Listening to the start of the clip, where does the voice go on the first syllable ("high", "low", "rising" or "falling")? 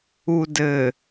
low